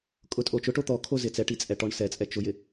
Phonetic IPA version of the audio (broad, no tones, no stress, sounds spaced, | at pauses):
kʼ ʊ tʼ o t͡ʃ ʊ ʈ o t̪ ɔ kʰ o z ɪ t͡s ɛ ʈ i t͡sʼ ɛ ʈ ɔ ɳ s ɛ t͡sʼ ɛ t͡ʃ ʊ j ɪ